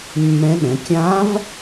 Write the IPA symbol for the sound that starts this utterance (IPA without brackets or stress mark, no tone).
mː